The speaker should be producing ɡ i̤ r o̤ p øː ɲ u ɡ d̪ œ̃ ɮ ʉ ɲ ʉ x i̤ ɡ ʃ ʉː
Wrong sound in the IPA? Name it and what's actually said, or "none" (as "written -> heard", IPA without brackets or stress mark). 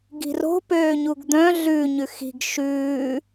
none